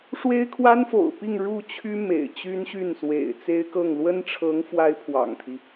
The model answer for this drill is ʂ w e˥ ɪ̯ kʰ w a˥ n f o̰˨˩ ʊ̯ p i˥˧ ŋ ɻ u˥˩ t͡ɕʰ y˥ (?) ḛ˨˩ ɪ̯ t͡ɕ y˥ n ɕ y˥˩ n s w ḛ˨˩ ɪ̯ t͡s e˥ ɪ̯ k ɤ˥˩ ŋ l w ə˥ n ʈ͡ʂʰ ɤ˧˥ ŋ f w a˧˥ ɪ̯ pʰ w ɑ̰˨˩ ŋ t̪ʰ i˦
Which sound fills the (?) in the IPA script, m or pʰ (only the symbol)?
m